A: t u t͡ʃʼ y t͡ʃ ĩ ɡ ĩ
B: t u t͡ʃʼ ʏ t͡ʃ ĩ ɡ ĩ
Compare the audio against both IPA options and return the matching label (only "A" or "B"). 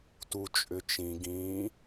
B